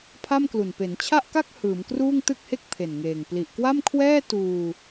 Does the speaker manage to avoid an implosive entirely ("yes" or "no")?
yes